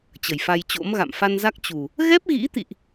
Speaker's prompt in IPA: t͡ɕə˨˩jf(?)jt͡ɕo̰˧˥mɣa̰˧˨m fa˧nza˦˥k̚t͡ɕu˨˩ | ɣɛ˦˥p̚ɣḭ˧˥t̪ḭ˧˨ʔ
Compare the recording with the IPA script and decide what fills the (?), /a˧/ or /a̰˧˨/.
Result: a˧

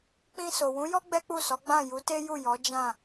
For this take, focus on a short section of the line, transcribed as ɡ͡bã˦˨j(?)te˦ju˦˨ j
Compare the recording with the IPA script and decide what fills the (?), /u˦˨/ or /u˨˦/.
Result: u˨˦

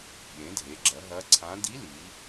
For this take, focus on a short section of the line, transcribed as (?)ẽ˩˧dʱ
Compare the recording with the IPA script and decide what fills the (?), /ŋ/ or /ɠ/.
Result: ɠ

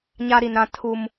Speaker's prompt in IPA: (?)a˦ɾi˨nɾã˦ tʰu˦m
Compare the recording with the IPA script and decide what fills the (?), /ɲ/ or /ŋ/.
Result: ɲ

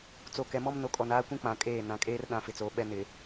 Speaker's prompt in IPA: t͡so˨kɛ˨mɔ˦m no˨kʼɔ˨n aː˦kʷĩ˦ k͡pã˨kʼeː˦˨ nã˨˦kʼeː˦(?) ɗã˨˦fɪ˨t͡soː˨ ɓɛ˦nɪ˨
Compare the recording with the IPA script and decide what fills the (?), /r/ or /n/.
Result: r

